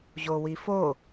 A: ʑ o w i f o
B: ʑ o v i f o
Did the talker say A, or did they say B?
A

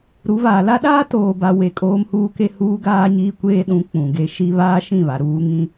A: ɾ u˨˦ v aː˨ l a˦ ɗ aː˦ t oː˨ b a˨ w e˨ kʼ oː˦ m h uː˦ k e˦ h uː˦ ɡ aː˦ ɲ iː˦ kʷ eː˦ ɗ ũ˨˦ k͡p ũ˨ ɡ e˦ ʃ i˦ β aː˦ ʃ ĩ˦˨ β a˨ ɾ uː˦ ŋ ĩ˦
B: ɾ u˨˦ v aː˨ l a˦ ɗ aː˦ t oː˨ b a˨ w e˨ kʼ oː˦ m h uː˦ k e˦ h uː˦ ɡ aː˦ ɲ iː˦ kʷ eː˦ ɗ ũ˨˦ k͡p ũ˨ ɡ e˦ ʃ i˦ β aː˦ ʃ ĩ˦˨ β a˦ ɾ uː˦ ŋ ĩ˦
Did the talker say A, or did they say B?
A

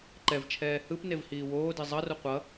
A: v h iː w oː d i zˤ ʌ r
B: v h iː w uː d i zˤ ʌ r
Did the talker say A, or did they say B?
A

